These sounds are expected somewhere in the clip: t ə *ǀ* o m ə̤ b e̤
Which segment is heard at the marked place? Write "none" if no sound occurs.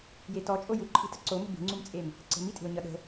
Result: ǀ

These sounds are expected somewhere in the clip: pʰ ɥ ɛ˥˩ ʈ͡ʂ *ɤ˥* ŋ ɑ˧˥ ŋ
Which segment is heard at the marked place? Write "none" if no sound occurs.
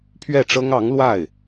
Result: ɤ˥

